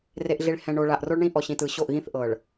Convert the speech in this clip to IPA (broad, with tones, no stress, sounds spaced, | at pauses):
r e˨ ʔ ɮ i˨ ɭ h ɛ̃˨ ɳ o˨ ɭ a˨ ʔ r o˦ ɭ ɳ ĩ˦ ʔ ɔ˨ ɕ ĩ˨ t ɯ˨ ɕ o˦˨ ʔ ɣ ĩ˦ θ ʔ ɤ˨ ɭ